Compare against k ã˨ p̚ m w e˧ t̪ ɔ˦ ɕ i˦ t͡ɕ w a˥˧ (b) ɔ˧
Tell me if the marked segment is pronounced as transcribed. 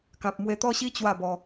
yes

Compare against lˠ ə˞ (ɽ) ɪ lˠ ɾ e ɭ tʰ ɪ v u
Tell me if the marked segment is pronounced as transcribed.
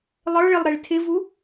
no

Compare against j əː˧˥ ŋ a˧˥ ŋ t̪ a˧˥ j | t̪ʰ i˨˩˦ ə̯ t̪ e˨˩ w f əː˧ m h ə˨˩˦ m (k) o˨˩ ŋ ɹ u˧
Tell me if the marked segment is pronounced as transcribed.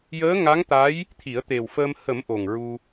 no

